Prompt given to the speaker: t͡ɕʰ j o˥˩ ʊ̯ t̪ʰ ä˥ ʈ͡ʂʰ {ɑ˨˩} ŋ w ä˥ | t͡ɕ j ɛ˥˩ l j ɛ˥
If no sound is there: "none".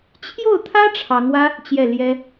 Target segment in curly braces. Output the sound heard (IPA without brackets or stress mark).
ɑ˧˥